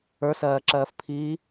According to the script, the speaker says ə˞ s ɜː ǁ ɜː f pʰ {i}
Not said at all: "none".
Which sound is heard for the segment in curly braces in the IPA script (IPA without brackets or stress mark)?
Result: iː